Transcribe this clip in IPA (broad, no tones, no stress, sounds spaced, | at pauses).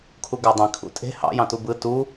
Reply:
kʰ u ɡ æ dˤ ĩ kʰ ṵ tʼ e̤ h ɑ̰ j ɑ̃ t u b ɯ t u